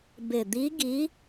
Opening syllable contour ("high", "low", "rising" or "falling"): low